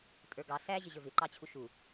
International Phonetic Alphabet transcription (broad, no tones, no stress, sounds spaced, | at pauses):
tʼ ə˞ ɡ ɑ s æ ʑ ɪ ʑ ə˞ v ɪ ǃ ɑ t͡ɕʰ u ʃ u